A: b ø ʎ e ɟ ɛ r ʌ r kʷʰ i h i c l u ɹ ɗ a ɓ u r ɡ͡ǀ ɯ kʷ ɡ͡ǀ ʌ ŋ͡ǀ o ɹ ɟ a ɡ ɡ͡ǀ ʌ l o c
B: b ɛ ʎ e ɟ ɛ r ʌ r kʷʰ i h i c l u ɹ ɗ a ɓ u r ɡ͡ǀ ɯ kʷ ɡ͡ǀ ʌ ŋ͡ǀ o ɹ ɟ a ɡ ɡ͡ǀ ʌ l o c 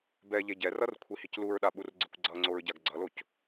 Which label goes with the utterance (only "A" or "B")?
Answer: B